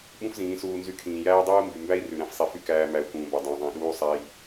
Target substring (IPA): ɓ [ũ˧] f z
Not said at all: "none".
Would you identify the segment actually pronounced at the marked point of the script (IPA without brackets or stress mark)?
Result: ũ˦